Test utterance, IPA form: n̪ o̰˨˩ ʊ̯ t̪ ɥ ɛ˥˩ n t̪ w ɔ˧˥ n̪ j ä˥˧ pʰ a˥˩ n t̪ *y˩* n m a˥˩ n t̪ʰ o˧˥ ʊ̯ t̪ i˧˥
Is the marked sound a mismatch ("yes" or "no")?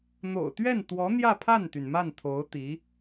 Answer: no